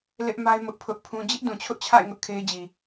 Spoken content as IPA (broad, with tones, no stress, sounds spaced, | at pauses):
l ɪ˦ ʔ m a˦ ɪ̯ m ʊ˦ ʔ pʰ ʊ˦ ʔ pʰ ũ˦ d͡ʑ ɪ˦ ʔ d ũ˨ t͡ɕʰ ʊ˦ ʔ t͡ɕʰ a̰˦˨ ɪ̯ ŋ ʊ˦ ʔ kʰ e˦ ɪ̯ d͡ʑ i˨